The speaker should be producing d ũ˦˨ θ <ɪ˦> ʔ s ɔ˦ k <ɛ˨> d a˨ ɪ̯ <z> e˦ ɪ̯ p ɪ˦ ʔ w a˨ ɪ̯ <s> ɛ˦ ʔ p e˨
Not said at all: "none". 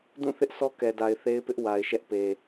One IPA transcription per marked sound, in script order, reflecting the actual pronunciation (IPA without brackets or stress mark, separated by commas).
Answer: ɪ˦, ɛ˨, θ, ʃ